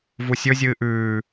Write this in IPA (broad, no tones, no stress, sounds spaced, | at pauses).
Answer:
v u sʲ ɵ zʲ ɨː ʔ ʉː